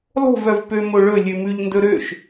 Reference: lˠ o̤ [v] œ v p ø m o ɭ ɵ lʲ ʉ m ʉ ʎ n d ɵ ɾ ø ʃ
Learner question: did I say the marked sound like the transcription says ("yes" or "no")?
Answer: yes